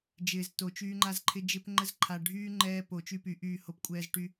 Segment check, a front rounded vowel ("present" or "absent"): present